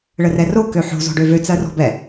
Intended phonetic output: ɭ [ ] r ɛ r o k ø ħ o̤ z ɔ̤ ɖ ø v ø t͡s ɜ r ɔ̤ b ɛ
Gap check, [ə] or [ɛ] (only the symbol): ə